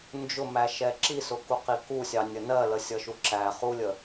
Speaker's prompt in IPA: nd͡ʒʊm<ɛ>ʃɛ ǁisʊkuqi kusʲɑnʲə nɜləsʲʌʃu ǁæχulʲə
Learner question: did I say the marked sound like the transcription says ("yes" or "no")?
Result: no